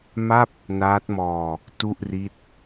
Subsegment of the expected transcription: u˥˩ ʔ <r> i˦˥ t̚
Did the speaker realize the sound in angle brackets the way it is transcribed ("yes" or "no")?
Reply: yes